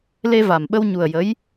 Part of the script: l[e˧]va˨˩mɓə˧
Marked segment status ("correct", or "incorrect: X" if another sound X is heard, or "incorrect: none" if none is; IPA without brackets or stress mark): correct